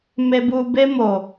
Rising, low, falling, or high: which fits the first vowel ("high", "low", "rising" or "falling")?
high